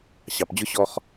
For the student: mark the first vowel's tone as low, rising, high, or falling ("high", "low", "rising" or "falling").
low